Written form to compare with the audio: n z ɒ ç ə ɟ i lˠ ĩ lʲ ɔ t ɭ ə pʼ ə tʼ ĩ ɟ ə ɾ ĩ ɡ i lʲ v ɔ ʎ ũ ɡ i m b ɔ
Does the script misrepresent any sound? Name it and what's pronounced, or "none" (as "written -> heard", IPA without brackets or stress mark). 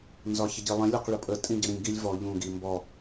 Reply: t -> q